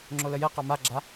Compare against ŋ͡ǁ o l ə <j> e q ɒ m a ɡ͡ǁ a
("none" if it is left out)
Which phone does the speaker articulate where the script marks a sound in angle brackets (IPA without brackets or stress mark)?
j